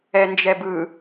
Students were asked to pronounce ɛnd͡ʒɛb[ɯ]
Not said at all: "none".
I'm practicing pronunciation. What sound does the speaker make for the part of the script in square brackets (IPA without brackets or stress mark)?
ɯ